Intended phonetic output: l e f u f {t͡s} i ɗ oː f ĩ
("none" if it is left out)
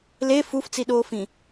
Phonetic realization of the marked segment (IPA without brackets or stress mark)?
t͡s